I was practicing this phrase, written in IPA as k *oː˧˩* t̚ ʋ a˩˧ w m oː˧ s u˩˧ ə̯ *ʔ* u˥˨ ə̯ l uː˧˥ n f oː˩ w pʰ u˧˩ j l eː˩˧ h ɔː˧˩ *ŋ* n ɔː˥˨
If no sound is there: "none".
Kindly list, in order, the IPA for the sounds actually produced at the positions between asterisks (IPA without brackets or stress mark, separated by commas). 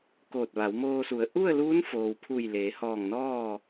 oː˧˩, ʔ, ŋ